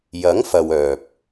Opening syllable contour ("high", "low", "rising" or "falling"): rising